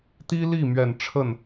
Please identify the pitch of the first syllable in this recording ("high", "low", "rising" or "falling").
high